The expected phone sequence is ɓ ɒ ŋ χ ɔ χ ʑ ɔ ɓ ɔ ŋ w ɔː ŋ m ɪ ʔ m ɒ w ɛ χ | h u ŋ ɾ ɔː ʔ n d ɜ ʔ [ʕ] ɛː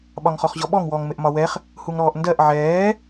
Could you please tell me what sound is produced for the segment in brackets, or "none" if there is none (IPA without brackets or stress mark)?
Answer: ʕ